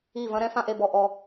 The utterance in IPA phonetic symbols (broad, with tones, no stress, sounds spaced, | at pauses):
i˥˩ v ɐ̃˥ ɾ ɛ̃˥ f ã˥˩ ʔ e˥˩ b ɔ˨˩ ʔ ɔ˨˩